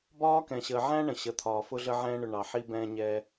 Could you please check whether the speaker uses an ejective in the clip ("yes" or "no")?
no